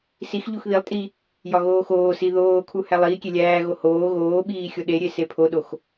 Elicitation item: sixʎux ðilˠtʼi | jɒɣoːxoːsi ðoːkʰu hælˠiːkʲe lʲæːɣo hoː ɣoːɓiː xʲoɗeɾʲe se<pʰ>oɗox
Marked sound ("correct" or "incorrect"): correct